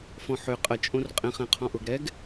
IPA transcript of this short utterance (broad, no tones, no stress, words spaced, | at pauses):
fɔ̃ħʏ qʼə t͡ʃʼõrqʼẽχ ẽqʰɔ̃ʔʊɡ ɾɛɡ